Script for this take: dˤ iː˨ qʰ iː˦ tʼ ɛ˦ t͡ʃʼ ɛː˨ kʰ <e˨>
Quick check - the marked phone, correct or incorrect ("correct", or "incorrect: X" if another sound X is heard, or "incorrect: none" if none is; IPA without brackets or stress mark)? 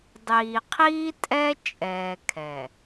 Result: incorrect: ɛ˨